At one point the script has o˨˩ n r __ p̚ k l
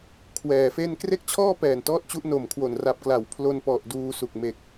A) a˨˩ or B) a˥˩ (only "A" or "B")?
A